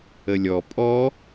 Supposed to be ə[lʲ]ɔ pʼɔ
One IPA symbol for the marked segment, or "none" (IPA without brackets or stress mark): lʲ